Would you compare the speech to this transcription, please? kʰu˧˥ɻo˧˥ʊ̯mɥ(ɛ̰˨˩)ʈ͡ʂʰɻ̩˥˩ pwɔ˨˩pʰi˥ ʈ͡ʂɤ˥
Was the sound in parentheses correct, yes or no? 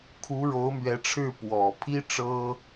no